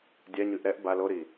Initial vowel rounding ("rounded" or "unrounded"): unrounded